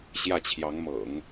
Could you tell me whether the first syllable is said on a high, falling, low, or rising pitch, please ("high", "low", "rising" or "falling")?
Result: falling